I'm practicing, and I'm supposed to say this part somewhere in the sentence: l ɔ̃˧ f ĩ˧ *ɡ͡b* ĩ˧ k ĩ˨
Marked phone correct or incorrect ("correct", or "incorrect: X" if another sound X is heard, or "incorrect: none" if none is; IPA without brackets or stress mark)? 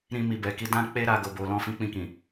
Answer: incorrect: k͡p